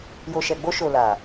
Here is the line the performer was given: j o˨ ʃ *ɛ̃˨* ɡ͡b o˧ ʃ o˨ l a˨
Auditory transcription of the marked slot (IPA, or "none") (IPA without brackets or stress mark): ɛ˨